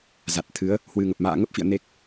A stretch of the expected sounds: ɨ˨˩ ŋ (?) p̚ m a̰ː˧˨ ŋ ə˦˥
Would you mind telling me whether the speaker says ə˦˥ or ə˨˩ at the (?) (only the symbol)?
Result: ə˨˩